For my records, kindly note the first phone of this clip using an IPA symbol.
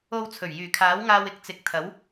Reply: o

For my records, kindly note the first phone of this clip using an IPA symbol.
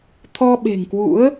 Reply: t̪ʰ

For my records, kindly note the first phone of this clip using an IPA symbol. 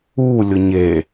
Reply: u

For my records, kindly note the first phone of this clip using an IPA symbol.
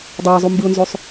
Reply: dˤ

